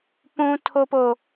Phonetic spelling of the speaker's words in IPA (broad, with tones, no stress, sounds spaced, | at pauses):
p ũ˦ tʰ o˦ p o˦